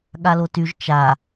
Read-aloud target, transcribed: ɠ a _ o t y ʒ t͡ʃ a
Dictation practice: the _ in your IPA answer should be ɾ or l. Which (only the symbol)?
l